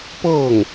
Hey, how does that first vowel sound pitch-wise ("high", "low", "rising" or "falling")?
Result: falling